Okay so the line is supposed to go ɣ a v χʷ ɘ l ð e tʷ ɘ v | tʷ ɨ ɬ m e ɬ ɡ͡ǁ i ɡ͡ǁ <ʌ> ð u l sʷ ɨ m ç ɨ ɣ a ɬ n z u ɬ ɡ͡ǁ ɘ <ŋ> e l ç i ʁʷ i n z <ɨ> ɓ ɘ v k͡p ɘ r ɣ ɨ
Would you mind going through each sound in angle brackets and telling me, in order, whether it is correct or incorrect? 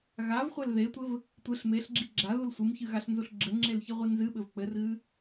incorrect, incorrect, correct

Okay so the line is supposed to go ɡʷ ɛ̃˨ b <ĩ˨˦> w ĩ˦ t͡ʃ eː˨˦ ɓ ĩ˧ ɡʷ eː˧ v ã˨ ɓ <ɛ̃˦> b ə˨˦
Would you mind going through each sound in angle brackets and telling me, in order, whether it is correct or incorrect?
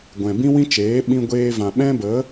incorrect, correct

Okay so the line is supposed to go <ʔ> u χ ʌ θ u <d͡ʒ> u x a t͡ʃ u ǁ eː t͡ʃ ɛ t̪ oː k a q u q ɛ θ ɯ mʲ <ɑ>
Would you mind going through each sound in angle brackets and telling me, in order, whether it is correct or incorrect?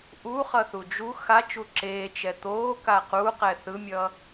correct, correct, incorrect

